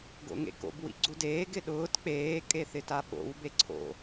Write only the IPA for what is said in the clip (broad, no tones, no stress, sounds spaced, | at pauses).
ɡ o̰ ŋ ḛ k o̰ b w ḭ ɡ͡ǀ u d eː ɡ ɪ ɗ ʊː t k͡p eː kʼ e θ ɪ t a ɓ o̰ w b e ǀʰ o̰